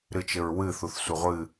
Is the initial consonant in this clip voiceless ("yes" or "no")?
no